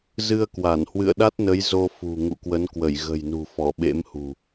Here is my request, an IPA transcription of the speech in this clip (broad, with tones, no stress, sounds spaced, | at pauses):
z ɨ˧ ə̯ k w a˧˩ n h w ɨ̰˧˨ ə̯ ɗ a˦˥ t̚ n ə˨˦ j z o˧ f ṳ˨˩ ŋ ṵ˧˨ k w ə˨˦ n k w ə˧˩ j ɣ ə̤˨˩ j n ṳ˨˩ f ɔ˧˩ ɓ ḛ˧˥ m h ṳ˨˩